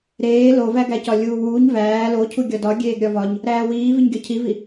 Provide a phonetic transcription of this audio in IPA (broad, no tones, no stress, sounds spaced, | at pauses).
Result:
ɾ eː l o v æ ɡ æ c ɒ lʲ uː w uː ɲ v æː l o cʰ u ɡʲ ɒ d ɒ ɡʲ eː ɡ ɾʲ ɒ v ɒ ɲ | ɾ æː w iː v i ɲ ɡʲ ɒ cʰ i v i